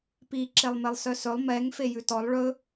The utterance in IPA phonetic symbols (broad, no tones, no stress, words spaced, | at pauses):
pi ǁelˠmelˠsœsɵlˠ mɛŋ fejʉtɔlˠ ɭɵ